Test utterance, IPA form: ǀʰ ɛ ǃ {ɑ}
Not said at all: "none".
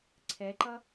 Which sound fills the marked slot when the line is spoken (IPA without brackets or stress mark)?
ʌ